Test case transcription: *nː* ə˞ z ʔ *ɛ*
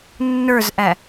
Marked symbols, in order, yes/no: yes, no

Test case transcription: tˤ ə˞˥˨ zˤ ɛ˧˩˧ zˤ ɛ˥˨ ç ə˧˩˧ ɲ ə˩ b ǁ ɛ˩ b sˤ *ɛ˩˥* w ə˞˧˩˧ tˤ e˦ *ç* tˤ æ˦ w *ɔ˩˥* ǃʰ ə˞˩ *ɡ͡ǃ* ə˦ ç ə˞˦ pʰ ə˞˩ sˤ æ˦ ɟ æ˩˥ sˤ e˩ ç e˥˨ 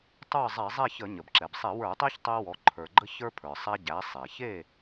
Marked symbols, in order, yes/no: no, yes, yes, yes

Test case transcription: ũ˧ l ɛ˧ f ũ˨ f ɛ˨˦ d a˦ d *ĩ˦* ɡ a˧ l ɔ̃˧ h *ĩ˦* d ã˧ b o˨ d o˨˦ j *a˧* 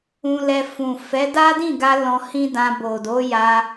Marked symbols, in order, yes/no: no, yes, yes

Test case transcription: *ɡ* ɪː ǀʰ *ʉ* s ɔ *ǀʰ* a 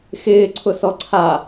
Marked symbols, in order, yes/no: no, no, yes

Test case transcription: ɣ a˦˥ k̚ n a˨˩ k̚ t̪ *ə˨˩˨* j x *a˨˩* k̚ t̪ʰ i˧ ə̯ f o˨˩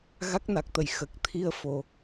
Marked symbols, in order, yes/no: yes, no

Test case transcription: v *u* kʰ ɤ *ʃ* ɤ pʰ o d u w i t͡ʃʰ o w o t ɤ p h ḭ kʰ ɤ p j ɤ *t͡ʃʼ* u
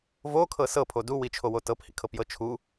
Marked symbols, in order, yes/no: no, no, no

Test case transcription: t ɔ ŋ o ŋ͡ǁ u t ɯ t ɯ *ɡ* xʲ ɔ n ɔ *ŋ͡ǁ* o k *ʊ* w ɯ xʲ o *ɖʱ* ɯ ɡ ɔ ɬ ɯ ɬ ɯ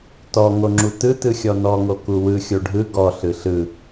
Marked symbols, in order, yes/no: no, no, no, yes

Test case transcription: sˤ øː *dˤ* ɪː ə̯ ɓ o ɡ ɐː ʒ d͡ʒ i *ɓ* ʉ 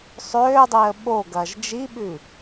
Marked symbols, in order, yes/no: yes, yes

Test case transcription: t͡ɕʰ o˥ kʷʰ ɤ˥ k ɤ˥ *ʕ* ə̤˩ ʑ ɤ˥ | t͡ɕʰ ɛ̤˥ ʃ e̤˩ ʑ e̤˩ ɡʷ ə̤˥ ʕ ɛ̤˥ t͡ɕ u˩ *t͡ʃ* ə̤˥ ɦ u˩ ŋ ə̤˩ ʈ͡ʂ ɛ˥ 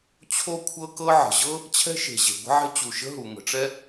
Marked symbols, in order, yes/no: yes, no

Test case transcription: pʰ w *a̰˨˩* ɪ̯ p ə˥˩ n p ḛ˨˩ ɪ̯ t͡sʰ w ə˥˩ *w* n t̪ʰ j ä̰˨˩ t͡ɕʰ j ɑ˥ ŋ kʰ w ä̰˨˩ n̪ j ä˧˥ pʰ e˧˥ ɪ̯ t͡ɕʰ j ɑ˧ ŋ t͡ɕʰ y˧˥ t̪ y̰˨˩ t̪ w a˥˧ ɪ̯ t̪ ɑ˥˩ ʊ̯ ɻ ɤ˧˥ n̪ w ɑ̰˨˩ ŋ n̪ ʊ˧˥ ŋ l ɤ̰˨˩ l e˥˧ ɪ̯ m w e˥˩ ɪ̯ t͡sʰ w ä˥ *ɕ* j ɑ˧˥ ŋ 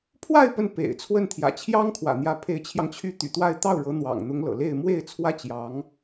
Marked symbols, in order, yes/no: no, no, no

